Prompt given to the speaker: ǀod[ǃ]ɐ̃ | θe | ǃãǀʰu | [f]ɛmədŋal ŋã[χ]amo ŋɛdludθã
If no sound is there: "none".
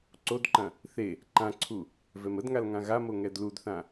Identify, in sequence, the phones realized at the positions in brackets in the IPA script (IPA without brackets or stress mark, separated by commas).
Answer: ǃ, v, ɣ